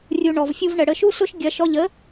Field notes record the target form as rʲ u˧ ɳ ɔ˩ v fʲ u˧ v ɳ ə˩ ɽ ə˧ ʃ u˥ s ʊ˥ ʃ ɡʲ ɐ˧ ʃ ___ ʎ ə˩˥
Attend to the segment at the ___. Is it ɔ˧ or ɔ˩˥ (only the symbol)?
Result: ɔ˧